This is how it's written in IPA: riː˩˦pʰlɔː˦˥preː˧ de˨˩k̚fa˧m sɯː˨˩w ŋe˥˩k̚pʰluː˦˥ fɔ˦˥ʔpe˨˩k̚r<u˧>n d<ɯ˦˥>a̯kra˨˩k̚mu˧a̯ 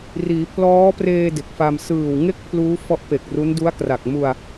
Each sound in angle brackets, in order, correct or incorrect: incorrect: u˦˥, incorrect: u˦˥

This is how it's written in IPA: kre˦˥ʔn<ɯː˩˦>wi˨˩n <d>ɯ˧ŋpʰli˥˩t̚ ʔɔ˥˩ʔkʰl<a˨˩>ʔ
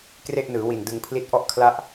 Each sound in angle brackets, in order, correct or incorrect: correct, correct, incorrect: a˥˩

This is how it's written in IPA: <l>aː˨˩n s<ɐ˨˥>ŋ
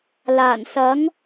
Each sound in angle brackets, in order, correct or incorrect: correct, correct

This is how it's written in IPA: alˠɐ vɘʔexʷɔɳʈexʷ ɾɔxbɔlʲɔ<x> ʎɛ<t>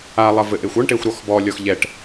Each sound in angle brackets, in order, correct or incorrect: correct, incorrect: ʈ

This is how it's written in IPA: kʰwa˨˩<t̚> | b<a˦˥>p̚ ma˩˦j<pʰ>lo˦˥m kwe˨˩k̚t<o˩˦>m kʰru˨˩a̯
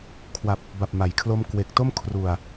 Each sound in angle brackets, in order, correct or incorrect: incorrect: p̚, incorrect: a˨˩, incorrect: kʰ, incorrect: o˥˩

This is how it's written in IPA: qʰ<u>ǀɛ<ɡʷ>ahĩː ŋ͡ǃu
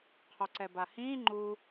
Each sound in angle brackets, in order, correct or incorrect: incorrect: o, incorrect: b

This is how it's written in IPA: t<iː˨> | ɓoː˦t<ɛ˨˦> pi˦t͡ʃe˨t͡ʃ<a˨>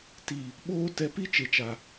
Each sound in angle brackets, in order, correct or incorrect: correct, incorrect: ɛ˧, correct

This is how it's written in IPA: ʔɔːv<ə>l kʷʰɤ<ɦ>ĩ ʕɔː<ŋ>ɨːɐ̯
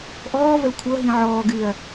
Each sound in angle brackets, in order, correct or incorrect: correct, correct, incorrect: ɡ

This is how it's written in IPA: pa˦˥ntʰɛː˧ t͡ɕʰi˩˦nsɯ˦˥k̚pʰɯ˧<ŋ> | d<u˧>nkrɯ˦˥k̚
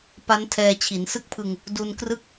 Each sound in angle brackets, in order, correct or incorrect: correct, correct

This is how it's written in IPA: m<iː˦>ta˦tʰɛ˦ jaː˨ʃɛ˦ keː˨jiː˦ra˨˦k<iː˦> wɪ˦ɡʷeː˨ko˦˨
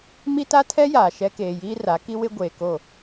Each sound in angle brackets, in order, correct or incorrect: incorrect: i˦, incorrect: i˦

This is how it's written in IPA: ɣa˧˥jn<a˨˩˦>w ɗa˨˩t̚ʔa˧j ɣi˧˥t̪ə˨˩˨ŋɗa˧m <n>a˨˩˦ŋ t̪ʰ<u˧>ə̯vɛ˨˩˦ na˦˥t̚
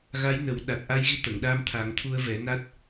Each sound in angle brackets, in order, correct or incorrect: incorrect: ə˨˩˦, incorrect: t̪ʰ, correct

